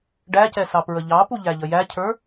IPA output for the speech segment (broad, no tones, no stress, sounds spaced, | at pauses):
ɖ æ c ɛ s ɑ p ɹ ə ʎ ɑ p u ʎ æ ʎ ə j æ cʰ ə˞